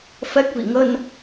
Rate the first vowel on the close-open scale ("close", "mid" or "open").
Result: mid